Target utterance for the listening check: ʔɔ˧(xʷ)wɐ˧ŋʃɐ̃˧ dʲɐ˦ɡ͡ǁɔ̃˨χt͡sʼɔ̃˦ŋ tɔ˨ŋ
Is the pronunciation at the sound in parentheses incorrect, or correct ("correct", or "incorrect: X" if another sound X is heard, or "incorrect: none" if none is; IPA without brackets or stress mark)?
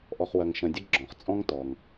incorrect: χ